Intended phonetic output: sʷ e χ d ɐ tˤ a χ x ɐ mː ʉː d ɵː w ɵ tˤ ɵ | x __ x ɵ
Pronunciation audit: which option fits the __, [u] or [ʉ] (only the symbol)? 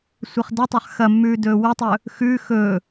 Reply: ʉ